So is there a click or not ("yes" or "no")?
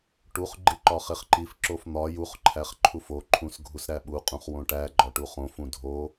yes